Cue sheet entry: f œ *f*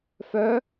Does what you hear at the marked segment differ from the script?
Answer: yes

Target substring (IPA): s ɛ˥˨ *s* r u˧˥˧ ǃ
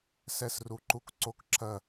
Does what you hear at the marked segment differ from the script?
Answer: no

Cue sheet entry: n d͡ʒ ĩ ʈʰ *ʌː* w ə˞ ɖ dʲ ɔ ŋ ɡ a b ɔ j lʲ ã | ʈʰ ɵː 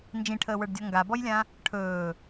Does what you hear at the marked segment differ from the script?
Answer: yes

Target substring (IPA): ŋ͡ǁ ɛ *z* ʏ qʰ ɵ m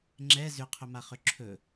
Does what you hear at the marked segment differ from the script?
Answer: no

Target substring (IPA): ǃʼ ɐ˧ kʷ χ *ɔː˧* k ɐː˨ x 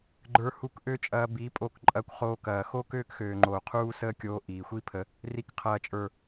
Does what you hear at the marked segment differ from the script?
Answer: yes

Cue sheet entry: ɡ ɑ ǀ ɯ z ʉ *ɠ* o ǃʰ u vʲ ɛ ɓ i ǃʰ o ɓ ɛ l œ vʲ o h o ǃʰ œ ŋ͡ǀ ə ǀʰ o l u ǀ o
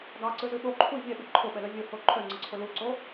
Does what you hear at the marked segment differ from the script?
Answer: no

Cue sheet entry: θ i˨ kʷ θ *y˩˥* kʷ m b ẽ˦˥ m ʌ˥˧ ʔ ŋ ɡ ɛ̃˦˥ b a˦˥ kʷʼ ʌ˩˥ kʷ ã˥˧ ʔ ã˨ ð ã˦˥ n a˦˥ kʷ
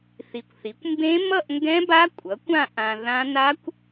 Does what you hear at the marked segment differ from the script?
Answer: yes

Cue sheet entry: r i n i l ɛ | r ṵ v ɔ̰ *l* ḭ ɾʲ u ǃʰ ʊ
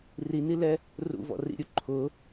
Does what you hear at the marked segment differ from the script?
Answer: yes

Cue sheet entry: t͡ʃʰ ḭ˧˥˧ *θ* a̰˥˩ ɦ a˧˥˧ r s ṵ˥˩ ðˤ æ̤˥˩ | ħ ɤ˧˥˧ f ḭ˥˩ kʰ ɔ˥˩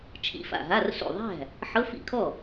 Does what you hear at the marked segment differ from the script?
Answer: yes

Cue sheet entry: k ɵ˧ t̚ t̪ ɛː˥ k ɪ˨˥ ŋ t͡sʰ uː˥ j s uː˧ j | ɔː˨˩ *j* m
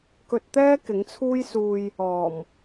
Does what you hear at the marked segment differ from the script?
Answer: yes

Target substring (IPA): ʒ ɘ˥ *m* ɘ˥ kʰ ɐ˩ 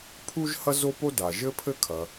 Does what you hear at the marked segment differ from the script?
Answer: yes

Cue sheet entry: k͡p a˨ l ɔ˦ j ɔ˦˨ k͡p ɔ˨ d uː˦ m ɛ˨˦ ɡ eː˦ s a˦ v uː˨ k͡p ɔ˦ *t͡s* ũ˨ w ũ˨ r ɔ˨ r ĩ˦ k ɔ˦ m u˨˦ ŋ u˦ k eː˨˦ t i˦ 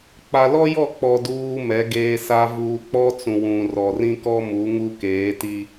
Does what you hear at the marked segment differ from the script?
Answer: no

